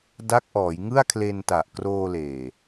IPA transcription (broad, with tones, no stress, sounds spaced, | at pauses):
d a˦˥ k̚ ʔ ɔː˩˦ j ŋ ɯ˥˩ a̯ kʰ l e˧ n t a˨˩ ʔ k r oː˧ l eː˨˩